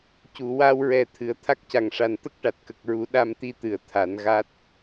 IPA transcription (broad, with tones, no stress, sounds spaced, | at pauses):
c u˨˩˨ w a˧ w ɹ ɛ˨˩ t̪ʰ ɨ˨˩˨ ə̯ t̪ʰ a˦˥ k̚ c a˨˩ ŋ ʂ a˨˩ n t̪ ə˦˥ k̚ ʈ a˨˩ t̚ k ə˨˩ k̚ ɹ u˨˩˦ ɗ a˧ m t̪ i˧ t̪ ɨ˨˩˨ ə̯ t̪ʰ a˨˩˦ n ɣ a˦˥ t̚